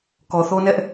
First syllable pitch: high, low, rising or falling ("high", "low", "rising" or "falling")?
low